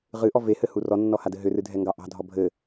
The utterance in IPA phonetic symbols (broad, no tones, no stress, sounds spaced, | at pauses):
ʁ ɨ ʔ ɔ v e h ɘ h u r ɔ nː ɔ h a d ɘ ɦ ʏ r ɨ dʱ ɛ ŋ ɡ ɑ ʔ ɑ̤ dʱ ɔ bʱ ɘ